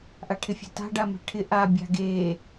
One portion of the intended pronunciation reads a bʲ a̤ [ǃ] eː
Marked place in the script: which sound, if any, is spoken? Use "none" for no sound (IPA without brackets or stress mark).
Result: ɡ